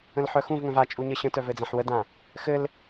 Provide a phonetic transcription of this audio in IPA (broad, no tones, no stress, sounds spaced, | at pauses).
ə̃ l ħ œ x ũ v ŋ œ̃ v a t͡ʃʼ u ɲ ə ɕ ə̃ t œ v ɘ d͡z ã ħ w ə d ã | x ɘ l